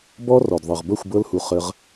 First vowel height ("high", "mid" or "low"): mid